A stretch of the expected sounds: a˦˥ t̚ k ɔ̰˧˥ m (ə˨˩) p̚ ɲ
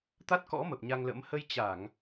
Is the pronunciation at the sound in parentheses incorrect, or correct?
correct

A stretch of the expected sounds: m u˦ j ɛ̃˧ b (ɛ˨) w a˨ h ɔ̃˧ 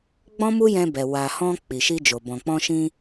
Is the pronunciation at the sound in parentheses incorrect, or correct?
correct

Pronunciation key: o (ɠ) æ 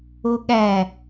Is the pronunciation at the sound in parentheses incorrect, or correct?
correct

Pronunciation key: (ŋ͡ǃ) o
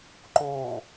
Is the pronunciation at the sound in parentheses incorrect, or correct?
incorrect: ǃ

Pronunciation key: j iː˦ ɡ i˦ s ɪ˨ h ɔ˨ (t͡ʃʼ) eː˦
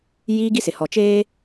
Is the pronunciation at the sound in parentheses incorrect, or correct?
incorrect: t͡ʃ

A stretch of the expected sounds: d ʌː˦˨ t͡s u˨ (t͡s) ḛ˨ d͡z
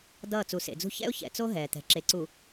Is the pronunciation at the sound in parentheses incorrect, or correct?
incorrect: s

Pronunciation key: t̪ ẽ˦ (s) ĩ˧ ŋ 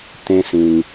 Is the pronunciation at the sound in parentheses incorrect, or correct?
correct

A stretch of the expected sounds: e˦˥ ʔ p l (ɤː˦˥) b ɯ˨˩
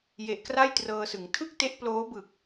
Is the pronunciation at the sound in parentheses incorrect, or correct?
incorrect: oː˦˥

